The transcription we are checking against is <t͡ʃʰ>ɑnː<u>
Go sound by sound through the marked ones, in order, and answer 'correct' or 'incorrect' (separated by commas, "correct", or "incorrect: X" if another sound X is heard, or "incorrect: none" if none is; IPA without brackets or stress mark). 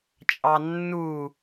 incorrect: t͡ʃʼ, correct